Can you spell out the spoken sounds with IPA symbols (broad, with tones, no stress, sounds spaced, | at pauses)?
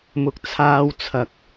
m ʊ˨ k̚ t͡sʰ aː˧ w t͡sʰ ɐ˨ k̚